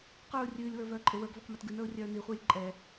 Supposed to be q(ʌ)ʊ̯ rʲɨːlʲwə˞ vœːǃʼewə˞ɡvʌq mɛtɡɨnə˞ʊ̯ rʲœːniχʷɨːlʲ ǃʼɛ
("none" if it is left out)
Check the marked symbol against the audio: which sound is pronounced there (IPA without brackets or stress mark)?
ə˞